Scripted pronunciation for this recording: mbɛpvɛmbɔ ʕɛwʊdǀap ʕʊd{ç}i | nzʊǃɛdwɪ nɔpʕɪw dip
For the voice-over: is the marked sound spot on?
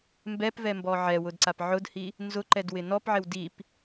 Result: no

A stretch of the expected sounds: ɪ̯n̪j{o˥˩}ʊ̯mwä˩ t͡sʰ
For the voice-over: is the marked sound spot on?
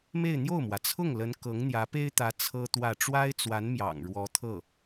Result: yes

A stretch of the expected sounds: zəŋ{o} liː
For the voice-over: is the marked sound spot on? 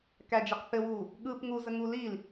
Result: no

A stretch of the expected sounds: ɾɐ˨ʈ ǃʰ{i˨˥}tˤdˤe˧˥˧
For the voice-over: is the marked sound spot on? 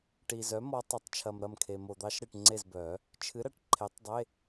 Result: no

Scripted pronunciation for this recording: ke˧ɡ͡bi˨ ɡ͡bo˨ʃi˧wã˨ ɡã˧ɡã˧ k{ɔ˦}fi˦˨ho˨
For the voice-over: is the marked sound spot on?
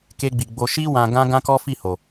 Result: yes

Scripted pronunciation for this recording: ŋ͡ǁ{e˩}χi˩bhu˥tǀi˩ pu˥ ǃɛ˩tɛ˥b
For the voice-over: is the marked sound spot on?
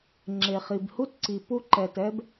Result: yes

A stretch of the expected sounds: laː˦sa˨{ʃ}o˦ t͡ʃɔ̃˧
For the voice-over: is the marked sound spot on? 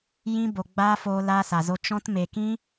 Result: no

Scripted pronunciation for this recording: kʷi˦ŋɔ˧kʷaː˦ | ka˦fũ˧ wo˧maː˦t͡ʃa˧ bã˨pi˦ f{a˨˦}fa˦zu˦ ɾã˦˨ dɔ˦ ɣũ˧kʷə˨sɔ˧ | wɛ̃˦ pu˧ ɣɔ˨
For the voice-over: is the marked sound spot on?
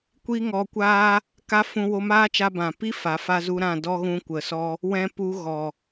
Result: yes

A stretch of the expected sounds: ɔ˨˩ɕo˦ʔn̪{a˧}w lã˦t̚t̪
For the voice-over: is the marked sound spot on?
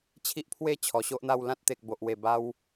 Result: no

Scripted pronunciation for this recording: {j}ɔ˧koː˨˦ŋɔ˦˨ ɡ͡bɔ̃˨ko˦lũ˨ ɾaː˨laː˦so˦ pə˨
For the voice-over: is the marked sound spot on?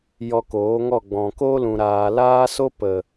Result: yes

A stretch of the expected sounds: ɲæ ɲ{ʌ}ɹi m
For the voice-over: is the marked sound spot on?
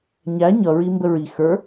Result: yes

